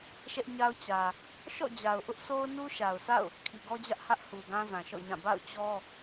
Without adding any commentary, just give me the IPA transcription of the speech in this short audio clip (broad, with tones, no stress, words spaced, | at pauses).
ʃɛ˦ʔɲa˦ʊ̯ t͡ɕä˨ | ʃɔ̰˦˨d͡ʑa˨ʊ̯ʔʊ˦ʔ sʰo˦ʊ̯nu˦ʃa˨ʊ̯sʰa̰˦˨ʊ̯ | kʰi˨ɡɔ˦d͡ʑä˦ʔhä˦ʔ hu˨ɡã˦ zã˨ʃɔ̰˦˨ɲã˦˨ ba̰˦˨ʊ̯t͡ɕɔ˦